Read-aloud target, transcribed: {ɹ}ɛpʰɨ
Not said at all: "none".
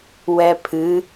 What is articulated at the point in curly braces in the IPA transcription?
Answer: w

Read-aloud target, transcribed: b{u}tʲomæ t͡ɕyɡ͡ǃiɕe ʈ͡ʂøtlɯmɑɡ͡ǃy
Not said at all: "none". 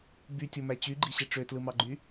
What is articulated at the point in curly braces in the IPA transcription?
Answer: y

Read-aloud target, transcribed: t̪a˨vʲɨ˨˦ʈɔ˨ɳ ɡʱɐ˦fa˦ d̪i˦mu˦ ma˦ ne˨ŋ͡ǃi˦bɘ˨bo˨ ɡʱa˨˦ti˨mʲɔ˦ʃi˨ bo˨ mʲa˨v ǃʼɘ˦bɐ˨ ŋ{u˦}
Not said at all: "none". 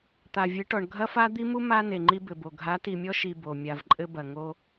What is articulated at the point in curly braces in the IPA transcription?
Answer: o˦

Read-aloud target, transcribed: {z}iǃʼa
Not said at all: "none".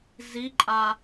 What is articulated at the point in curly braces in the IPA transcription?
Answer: z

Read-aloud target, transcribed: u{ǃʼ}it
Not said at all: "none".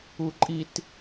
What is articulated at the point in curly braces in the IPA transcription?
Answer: ǃʼ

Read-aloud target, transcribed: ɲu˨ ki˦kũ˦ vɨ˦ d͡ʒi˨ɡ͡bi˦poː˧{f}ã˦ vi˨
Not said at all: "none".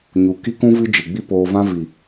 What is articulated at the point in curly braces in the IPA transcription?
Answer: v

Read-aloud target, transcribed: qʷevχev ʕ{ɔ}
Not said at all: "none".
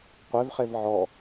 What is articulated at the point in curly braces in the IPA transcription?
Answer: ɔ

